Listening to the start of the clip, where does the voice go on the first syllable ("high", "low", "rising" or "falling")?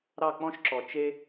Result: falling